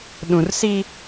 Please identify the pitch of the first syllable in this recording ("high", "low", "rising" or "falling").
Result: low